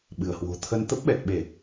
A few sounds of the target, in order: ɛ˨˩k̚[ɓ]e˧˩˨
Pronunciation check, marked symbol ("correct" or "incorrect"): correct